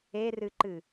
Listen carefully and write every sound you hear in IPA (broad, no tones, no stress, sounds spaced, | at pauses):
e r ɨ ǃ ɨ